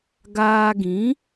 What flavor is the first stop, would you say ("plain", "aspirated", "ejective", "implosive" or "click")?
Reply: plain